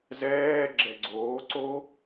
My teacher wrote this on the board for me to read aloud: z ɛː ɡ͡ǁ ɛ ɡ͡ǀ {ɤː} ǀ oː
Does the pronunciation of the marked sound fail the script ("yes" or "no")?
yes